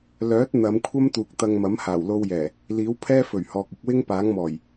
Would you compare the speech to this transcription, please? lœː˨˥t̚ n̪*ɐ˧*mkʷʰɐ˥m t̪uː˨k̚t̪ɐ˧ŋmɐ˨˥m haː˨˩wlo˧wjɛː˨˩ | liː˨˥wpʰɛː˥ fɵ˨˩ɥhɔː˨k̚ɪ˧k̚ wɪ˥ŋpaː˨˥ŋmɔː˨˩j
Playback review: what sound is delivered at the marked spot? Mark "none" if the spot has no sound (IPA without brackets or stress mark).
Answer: ɐ˨˧